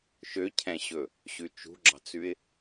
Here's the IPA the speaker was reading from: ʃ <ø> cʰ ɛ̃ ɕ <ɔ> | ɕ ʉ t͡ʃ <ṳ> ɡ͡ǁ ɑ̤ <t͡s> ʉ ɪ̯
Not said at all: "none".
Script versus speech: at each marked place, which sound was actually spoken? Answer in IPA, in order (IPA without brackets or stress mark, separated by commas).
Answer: ø, ɵ, ṳ, t͡s